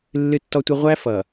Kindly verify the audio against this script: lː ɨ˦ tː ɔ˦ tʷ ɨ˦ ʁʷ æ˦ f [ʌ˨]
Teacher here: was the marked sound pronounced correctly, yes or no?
yes